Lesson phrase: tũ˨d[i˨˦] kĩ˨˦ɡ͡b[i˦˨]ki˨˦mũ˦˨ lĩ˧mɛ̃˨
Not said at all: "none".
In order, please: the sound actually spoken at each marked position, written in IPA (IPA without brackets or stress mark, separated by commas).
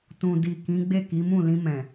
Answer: i˨, e˦˨